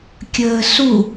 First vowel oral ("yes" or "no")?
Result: yes